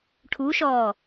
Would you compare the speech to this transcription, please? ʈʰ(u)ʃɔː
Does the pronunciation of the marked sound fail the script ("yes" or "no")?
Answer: no